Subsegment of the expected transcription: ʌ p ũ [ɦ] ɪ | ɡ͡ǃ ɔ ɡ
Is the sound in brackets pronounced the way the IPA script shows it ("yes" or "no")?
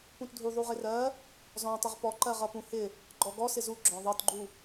no